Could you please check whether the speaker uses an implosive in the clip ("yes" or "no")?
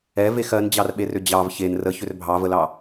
yes